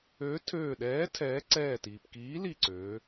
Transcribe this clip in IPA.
øː˨˥ tʰ øː˧˩ ɗ ɛː˨˥ tʰ ɛː˨˥ ǀ ɛː˧˩ t iː˩ p k iː˨˥ l i˧˩ ǀ øː˩˧

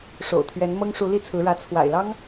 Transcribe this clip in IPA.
ʂ o̰˨˩ ʊ̯ t̪ʰ ɥ ɛ˧˥ n m ɤ˥ ŋ ʂ u˧˥ l i˥˩ t͡sʰ ɹ̩˧˥ ɻ ä˧˥ t͡sʰ w a̰˨˩ ɪ̯ l ɑ˥ ŋ

